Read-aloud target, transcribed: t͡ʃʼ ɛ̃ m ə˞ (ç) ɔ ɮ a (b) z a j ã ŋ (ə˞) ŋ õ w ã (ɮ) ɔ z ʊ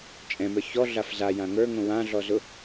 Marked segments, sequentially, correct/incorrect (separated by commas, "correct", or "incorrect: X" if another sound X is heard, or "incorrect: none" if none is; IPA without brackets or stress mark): correct, incorrect: f, correct, correct